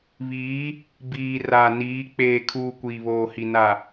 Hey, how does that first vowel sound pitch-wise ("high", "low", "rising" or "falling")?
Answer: rising